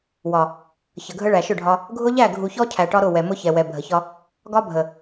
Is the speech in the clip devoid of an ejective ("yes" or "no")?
yes